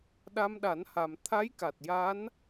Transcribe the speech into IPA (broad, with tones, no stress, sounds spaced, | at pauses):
ɗ a˧ m ɗ a˨˩˦ n h a˨˩ m t̪ʰ a˧˥ j k a˨˩ t̚ j a˧˥ n